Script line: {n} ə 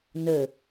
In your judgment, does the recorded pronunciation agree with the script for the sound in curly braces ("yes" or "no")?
yes